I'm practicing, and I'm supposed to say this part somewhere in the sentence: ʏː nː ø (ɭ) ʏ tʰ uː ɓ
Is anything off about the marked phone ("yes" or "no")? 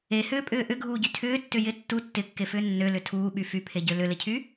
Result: yes